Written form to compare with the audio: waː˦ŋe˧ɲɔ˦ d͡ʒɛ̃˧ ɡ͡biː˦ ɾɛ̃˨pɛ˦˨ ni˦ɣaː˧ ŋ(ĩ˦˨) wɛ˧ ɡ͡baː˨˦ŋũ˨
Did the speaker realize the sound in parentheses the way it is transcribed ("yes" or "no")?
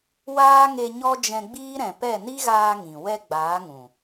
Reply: no